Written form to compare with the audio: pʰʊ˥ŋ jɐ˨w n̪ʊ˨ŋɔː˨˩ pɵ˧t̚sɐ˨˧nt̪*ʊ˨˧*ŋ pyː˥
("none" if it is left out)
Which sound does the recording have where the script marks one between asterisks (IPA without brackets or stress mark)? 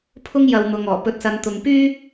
ʊ˨˧